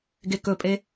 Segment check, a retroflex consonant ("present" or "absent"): absent